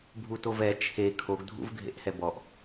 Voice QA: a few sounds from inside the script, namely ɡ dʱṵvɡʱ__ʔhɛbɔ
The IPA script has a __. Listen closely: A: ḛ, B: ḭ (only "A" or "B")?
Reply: A